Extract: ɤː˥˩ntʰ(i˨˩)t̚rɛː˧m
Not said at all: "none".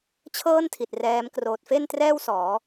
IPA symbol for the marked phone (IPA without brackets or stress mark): i˨˩